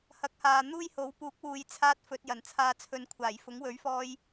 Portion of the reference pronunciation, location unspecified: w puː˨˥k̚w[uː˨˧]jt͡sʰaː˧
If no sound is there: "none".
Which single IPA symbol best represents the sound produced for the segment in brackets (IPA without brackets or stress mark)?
uː˨˧